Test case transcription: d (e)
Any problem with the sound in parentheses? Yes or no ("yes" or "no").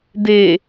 no